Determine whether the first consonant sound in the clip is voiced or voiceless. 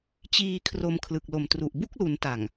voiceless